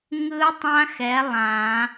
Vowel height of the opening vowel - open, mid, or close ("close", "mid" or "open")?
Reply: close